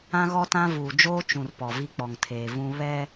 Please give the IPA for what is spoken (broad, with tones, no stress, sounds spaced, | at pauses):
ã˦ ɣ ɔ˦ t ã˦ v uː˨ d͡ʒ oː˦ t͡ʃ ũ˨ r p ɔ˨ v i˦ k͡p ɔ˨ ŋ tʰ eː˨ v ũ˦ β ɛ˦